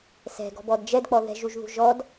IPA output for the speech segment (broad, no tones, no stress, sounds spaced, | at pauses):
s ɛ̤ ɡ ɔ̤ b ɔ d d͡ʒ ɛ d k͡p ɔ ð ɛ̤ ʒ u ʒ ð ṳ ʒ ɔ d